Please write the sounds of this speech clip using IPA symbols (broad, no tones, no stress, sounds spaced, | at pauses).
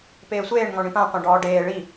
p eː sʷ eː ɳ ŋ ɔ̃ ɳ ĩ p ã qʷ ã ɖ ɔː ɖ eː ɭ i